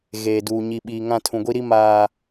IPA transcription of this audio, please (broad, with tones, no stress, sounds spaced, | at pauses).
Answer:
ɣ eː˨ d uː˨ ɲ i˨ ɓ iː˨ ŋ ã˦˨ tʰ ũ˨ ɡʷ i˦ ɾ i˦ m aː˨